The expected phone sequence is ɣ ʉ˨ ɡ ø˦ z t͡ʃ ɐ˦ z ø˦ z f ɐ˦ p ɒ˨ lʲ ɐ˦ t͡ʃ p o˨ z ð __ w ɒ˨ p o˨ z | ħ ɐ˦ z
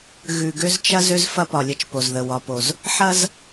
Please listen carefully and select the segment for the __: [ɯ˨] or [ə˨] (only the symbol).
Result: ə˨